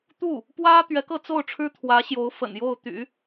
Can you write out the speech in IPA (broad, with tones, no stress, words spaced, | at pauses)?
t̪u˥˩ | pwä˥ t̪ɥɛ˧˥kɤ˥˧t͡so˥˩ʊ̯ʈ͡ʂʰɻ̩˥ t̪ʰwä˧˥ɕjo˧˥ʊ̯ fə̰˨˩njo˥˩ʊ̯t̪y̰˨˩˦